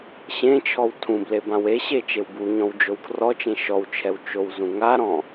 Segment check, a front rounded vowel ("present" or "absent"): absent